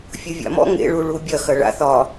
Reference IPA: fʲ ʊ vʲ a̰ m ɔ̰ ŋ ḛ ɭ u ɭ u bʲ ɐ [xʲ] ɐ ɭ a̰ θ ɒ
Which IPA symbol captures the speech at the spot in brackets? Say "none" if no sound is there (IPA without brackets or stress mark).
x